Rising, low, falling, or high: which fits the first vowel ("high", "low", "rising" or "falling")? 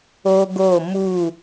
high